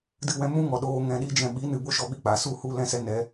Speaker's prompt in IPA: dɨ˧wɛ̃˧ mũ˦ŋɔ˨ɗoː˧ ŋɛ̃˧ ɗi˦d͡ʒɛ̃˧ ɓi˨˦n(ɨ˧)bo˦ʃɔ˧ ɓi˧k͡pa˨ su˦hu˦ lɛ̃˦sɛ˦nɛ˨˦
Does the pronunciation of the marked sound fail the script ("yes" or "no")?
yes